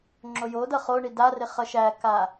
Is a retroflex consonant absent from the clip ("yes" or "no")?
no